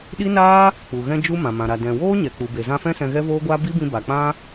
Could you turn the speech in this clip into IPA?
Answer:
ɗ i˦ n aː˦ | k͡p u˨ ɣ ɛ̃˧ d͡ʒ u˧ m ã˨ m ã˨ ɾ a˨ d ɛ̃˨ w oː˦ ɲ ɛ˨ k͡p u˨ b e˨ z ã˧ f ɛ̃˦ s ɛ̃˧ ɣ ɛ˦ v oː˦ ɡʷ aː˦ b i˦ b ĩ˧ b a˨ k͡p ã˦

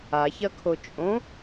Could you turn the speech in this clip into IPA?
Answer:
a ç ɐ kʰ o t͡ʃʼ õ

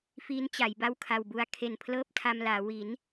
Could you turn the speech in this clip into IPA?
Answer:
f iː˦˥ n t͡ɕ a˩˦ j b a˥˩ w kʰ a˨˩ w b u˧ a̯ kʰ e˨˩ n pʰ l ɤː˥˩ p̚ tʰ a˧ m l aː˩˦ w i˩˦ n

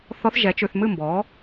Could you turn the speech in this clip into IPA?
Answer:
θ ɔ˧˥ θ ʒ ɛ˩˥ t͡ʃ ʉ˨ θ m ɨ˥˩ m b ɔː˩˥

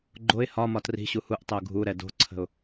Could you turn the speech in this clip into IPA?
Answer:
ɡ͡ǃ o ɪ̯ h ɒ m ɒ t r i̤ ɕ u h u ʔ tˤ ɛ ʊ̯ ɡʱ u ɾ ɛ d o̤ ǀʰ ə̤ ʊ̯

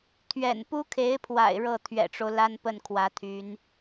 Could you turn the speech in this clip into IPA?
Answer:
t̪ʰ ɥ ɛ̰˨˩ n p u˥ kʰ e˧˥ ɪ̯ pʰ w a̰˨˩ ɪ̯ ɻ ɤ˥˩ t̪ʰ ɥ ɛ̰˨˩ ʈ͡ʂ o˦ ʊ̯ l a˥ n p ə˥˩ n kʰ w ä˧˥ t̪ʰ y˧˥ n

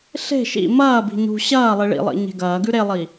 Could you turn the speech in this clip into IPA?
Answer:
ɬ e̤ ʃ ḭ m ɐː b i̤ ɲ ṳ ɕ ɐː lˠ i ɭ ḭ lˠ ḭ ɲ e̤ ɡ ɐː ɡ ʉ ɾ e lˠ i

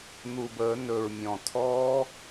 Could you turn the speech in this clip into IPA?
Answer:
n̪ u˨˩ b əː˨˩˦ n ɵ˨˩ ɹ mʲ ɔ̃˨˩ tʰ ɔː˦˥

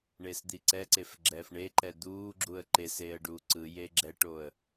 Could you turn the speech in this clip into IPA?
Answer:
ɳ e s d̪ i ǀ ɛ ǀ e f ɡ͡ǁ ɛː f ɳ e ǃ ɛ d̪ uː ɡ͡ǁ u ə̯ ǃ e s eː ə̯ ɖ uː ǀ ɯ j e ɡ͡ǁ ɛ ʈ o ə̯

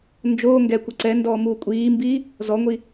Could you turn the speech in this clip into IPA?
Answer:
n d͡ʒ oː ŋ ɡ ɛ kʷ ɛ ǀ ɛ n d ɔː m uː kʷʼ iː m b iː | z ɔ ŋʷ i

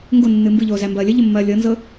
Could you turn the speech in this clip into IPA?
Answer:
ŋ ɡ o nː ɨ m b ɨ ʎ oː z æ m b ɐː lʲ ə ʎ ə mː ɐː lʲ ɤ n z ɤ

